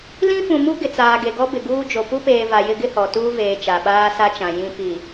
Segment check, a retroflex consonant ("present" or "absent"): absent